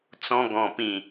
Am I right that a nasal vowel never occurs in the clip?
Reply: no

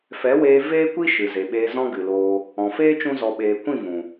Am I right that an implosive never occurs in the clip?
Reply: no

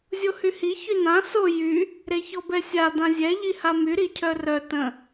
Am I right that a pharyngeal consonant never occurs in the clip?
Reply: yes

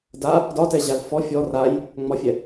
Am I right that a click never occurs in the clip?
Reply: yes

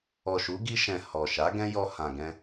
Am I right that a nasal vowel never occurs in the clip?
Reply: no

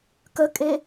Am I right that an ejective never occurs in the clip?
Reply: no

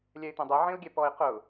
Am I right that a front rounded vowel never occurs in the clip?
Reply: yes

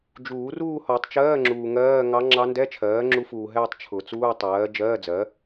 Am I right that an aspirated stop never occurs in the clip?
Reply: no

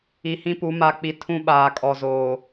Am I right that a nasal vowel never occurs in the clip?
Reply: no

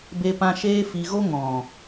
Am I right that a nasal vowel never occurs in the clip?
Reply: no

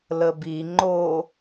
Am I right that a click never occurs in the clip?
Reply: no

